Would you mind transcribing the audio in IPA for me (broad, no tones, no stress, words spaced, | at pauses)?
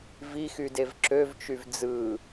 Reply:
vixydev ǁøvt͡ʃyv d͡zɯ